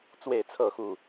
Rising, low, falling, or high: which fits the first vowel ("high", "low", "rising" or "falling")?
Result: falling